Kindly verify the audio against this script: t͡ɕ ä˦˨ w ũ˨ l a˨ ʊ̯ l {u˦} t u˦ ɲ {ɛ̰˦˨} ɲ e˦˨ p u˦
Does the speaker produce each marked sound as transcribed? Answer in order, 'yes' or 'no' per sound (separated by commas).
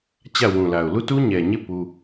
no, no